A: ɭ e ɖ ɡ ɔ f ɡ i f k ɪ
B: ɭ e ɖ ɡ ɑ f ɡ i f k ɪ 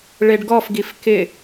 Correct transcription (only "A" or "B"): A